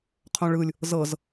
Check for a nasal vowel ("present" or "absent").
present